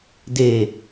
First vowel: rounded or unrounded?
unrounded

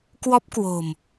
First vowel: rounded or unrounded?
rounded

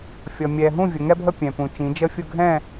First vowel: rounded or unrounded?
unrounded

